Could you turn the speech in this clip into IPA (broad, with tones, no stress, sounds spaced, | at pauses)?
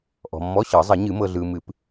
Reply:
ʔ ɔ̤˨ mː ɔ˧˥˧ ɕ ɤ˨˩˦ zˤ ə˨˩˦ ɲ ɨ˨˩˦ m ɤ˨ ɮ ɯː˨ m ɨ˨˩˦ p